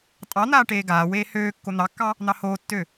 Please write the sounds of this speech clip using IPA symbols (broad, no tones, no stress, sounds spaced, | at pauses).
tʼ ɑ n̪ aː ʈ eː ɡ aː w eː h øː kː o n̪ ɑ kː ɑ | n̪ ɑ h oː tː ø